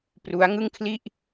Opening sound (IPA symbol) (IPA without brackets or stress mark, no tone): p